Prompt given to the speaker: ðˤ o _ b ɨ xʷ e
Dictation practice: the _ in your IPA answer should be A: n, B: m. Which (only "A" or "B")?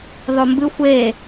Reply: B